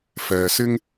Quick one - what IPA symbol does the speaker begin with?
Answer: f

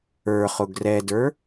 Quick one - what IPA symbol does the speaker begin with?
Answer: ə˞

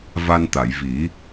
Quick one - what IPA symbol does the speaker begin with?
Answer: v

